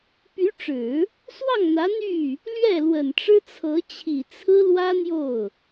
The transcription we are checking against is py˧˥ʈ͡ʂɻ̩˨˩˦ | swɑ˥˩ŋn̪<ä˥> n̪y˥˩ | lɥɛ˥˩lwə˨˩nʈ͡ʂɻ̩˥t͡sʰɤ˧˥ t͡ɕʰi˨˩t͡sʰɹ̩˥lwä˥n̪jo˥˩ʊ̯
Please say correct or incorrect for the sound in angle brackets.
incorrect